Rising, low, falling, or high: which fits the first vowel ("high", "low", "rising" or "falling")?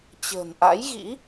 low